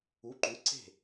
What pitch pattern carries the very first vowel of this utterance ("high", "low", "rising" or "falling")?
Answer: rising